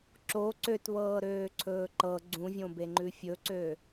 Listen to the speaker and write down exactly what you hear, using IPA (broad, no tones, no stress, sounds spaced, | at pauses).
ǁ o ǀ ø t β ɤː ɾ øː ǀʰ ɵː ǃ ɤ ɡ͡ǀ ũ vʲ õ b e ŋ͡ǃ ʉ fʲ ɵ ǀ ø